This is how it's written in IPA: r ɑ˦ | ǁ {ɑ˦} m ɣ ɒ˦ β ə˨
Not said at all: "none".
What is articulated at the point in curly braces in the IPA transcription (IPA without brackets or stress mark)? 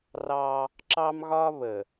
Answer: ɑ˦